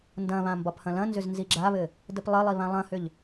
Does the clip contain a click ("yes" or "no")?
yes